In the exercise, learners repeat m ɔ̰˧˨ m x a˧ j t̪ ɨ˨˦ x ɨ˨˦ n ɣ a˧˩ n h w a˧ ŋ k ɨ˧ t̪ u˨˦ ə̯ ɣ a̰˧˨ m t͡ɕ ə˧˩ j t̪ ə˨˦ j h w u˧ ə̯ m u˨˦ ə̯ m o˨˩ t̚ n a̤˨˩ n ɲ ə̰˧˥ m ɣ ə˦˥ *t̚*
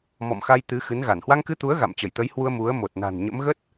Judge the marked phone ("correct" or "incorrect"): correct